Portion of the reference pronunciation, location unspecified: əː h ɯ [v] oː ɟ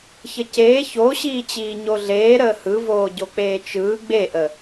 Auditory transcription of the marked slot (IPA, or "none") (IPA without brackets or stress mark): v